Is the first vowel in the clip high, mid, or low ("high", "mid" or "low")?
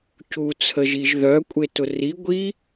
high